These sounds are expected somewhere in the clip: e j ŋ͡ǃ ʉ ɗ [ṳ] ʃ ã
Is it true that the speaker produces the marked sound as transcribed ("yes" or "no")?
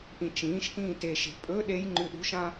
yes